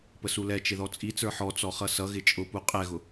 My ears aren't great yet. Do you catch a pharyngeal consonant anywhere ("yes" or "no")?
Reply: yes